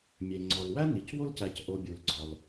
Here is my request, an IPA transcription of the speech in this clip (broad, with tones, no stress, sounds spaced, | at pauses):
mʲ e˩ ŋ͡ǀ ɒ˩ l w æ˥ n i˩ c w o˥ l c æ˨ c ʔ o˨ bʲ u˩ l ɡ͡ǀ ɒ˩ l